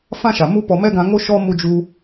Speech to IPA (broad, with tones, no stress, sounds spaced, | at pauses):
f ã˦ ʃ a˨ m u˦ p ɔ˧ m ɛ˦ ɡ ã˧ ŋ o˦ ʃ ɔ˦ m u˧ d͡ʒ u˧